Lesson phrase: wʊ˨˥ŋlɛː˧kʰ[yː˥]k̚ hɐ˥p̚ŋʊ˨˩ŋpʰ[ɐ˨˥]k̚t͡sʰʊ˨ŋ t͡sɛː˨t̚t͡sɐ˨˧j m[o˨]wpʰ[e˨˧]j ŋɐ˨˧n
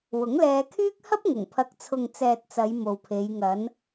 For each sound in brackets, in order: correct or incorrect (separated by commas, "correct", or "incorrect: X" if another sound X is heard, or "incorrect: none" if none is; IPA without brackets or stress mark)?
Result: correct, incorrect: ɐ˨, correct, correct